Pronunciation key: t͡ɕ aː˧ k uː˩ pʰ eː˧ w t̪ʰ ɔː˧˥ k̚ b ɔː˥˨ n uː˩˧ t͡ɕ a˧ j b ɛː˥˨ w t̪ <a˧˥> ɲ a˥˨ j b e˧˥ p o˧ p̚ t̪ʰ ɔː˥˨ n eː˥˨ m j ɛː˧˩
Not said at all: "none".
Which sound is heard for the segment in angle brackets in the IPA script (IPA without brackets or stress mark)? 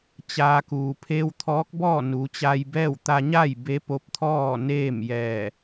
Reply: a˧